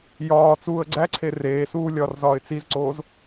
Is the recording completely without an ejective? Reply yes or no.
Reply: yes